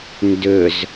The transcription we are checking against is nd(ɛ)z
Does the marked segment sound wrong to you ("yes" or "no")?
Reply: yes